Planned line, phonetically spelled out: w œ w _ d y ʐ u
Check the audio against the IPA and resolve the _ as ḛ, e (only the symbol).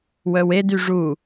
e